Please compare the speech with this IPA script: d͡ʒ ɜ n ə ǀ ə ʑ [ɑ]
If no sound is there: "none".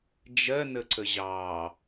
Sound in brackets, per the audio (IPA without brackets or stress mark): ɑ